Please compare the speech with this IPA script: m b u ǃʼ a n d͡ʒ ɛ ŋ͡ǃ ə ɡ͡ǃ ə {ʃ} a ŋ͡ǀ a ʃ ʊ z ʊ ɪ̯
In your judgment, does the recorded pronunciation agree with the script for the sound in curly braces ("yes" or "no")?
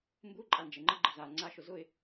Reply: no